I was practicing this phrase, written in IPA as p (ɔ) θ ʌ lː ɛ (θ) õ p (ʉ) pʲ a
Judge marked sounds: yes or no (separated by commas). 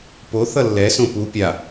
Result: no, no, no